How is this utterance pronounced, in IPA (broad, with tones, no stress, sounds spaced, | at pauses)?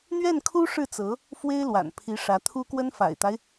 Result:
n̪ ɥ ɛ˥˩ n kʰ u˥ ʂ ɻ̩˥˩ t͡s ɤ˧˥ | f w e˥ ɪ̯ l w a̰˨˩ n pʰ i˧˥ ʂ ä˧˥ t̪ʰ u˥ k w ə˥ n f a̰˨˩ ɪ̯ t̪ a˦ ɪ̯